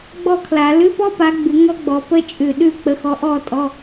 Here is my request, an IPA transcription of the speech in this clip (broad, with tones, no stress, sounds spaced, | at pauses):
ɡ͡b ɔ˥˨ kʰ l a˨˩˦ l ʉ˧˥˧ p ɔ˥ p a˨˦ ɡ͡b ʉ˨˩˦ ŋ ɔ˥ ɡ͡b ɔ˨˦ p ə˥ t͡ʃʼ ʉ˧˩ ɗ ʉ˥˨ k͡p ə˨˦ x ɔ˨˦ ʔ ɔ˥˨ tʼ ɔ˧˥˧